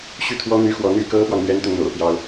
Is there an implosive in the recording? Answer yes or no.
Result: no